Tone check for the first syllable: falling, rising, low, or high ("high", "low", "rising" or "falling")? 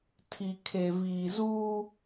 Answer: low